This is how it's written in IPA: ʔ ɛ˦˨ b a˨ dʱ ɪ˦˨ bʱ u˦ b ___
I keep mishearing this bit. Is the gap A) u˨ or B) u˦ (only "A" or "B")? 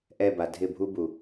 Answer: A